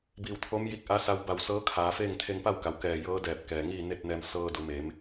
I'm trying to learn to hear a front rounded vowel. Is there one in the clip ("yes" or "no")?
no